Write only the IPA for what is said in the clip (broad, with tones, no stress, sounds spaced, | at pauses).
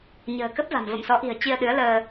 ɲ ə̤ː˨˩ k ə˦˥ p̚ v a̤˨˩ m v ə̰˧˨ m s ɔ˨˦ ʔ i̤˨˩ ə̯ t͡ɕ i˧ ə̯ ɗ ɨ˨˦ ə̯ l əː˧